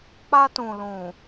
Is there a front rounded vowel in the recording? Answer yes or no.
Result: no